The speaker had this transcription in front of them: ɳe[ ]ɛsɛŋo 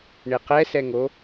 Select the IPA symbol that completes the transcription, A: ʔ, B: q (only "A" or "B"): B